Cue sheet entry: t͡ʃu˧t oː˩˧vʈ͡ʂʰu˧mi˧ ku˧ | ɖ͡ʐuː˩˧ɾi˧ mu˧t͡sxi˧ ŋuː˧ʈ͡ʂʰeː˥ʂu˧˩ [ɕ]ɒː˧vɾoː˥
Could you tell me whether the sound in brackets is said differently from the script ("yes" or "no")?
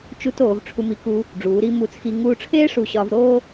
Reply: no